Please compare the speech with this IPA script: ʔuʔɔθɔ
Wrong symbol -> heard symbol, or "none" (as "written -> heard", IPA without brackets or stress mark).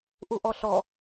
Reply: θ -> ɬ